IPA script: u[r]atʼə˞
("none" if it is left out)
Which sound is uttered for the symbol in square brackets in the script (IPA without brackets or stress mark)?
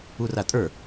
r